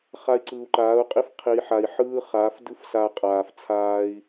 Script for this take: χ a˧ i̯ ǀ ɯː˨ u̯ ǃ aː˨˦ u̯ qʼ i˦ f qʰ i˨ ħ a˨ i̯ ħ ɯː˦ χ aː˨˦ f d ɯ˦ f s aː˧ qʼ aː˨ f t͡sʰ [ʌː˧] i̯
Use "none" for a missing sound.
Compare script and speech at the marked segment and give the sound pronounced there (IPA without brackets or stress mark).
aː˧